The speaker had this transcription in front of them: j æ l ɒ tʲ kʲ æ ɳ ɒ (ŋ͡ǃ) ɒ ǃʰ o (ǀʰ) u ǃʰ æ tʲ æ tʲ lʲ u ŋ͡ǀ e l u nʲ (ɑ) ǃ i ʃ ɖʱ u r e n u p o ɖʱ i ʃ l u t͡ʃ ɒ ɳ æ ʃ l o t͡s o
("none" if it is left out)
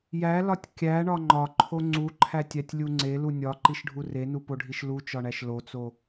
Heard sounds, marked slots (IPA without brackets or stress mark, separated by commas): ŋ͡ǃ, ŋ͡ǀ, ɒ